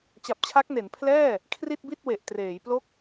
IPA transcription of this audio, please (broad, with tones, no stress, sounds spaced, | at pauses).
t͡ɕ a˨˩ p̚ t͡ɕʰ a˦˥ k̚ n e˩˦ n pʰ l ɛː˥˩ | kʰ r i˥˩ t̚ b i˥˩ t̚ w e˨˩ ʔ t r eː˩˦ j p l o˥˩ k̚